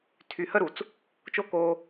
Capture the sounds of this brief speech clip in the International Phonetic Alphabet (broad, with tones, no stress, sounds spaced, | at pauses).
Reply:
tʰ y˨ h ə˦ ɾ u˨ t͡s | t͡ʃ o˦ k oː˧